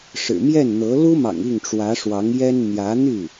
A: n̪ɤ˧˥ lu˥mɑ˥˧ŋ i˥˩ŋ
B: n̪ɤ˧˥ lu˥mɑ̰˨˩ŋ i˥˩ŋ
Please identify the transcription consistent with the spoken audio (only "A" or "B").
B